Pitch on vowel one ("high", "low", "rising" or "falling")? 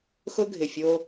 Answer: high